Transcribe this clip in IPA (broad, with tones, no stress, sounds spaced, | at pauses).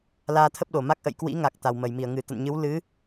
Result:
l aː˧ t̪ʰ ə˦˥ p̚ ɗ o˨˩ m a˦˥ k̚ ʔ ə̰˧˨ j k w ḭ˧˥ ŋ a˨˩ k̚ t̪ a˨˩ w m ə˧˩ j m i˧˩ ə̯ ŋ ɨ˧˩ t̪ ə̰˧˨ n ɲ ɨ˨˦ w l ɨ˨˦